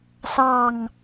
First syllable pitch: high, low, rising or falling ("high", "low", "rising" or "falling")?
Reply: falling